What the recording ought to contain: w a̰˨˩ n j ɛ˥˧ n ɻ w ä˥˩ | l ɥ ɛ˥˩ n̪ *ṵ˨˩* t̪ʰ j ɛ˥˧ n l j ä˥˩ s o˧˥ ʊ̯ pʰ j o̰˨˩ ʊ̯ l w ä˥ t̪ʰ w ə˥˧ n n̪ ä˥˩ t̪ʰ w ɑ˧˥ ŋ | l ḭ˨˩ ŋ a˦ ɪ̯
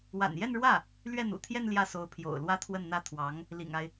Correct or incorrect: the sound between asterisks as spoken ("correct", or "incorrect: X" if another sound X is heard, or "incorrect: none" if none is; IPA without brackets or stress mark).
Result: correct